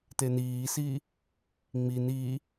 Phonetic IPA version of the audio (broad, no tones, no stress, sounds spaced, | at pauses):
t e n iː s iː | ŋ͡m i n iː